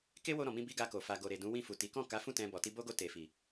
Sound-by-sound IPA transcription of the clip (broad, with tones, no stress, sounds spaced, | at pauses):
k e˦ w o˧ ɾ ɔ̃˨ m ĩ˧ b i˦ ɡ a˧ k o˨ f a˨ ɡ o˨ ɾ e˨ d ũ˨˦ w ĩ˦˨ f u˨ t i˨˦ k ɔ̃˦˨ k a˨˦ f ũ˦˨ t ɛ̃˧ b ɔ˨ t i˧ b o˦ ɡ o˧ t e˨ f i˨